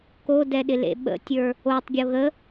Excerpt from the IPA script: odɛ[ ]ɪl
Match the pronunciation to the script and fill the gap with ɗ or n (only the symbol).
ɗ